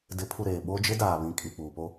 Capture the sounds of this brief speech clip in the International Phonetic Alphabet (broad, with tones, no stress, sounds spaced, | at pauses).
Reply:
d ɪ˨˦ pʰ u˨ ɾ eː˨ ɓ o˦ d͡ʒ ɪ˦ d aː˨ β ĩ˨ kʼ i˨ k͡p uː˨ p o˦